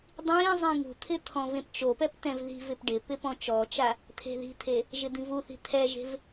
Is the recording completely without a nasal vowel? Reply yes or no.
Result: no